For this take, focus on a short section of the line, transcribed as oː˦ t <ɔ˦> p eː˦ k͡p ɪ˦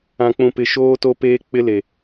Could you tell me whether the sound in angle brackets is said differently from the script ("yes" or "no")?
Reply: yes